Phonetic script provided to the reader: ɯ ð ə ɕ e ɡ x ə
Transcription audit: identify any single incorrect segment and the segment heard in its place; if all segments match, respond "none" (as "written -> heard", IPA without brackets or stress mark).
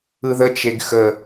ɕ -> t͡ʃ